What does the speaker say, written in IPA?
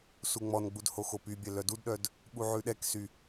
suŋ͡mɔnɡ͡bud hoxopybʲɛ lœdudɗœd | ɓuʕʉɗɛksy

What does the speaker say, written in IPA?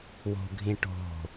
wo̤ɡʱĩʈo̤

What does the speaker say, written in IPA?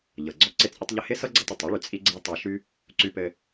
ʎɤ˩ɡ͡ǀɔ˥ ǀɪ˥t͡sʼɪ˥tˤʎɘ˥ hɪ˥sɤ˥ɡ͡ǀɤ˧tˤ ɪ˩tˤi˥ɭy˩ t͡sʼi˥ɡ͡ǀɤ˥ tˤa˧ʃy˥ | ǀy˧pɘ˧

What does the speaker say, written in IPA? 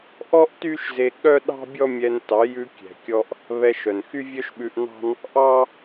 ʔɔ˦ʔ ty˦ʃze˧ ɠœ˦ɗɑ̤˦bʲɔ˦ mʲɛ˧n tɑ˨˦jʉ˧ kʲɛ̤˨kʲɔ˧ʔ | βɛ˧ʃœ˨n xy˦vʲœ˦ʃɓʉ˧ʔnɑ̤˦n | ʔɑ˦

